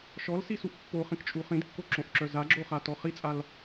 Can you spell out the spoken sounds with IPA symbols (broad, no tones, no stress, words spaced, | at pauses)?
ʃɔlsisuʔ pːoχĩkt͡ʃʼu χĩdkːoǁõʔǁœ zaɡ͡ǁoχatɔ χit͡sʼal